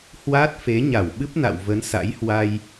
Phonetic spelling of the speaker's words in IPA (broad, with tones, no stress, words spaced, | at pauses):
hwa˦˥t̚fe˨˦ ɲa˧˩wɓɨ˦˥p̚na̰˧˨w və˨˦nsa̰˧˥jhwa˧j